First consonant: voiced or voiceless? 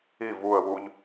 voiced